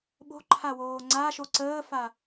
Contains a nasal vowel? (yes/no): no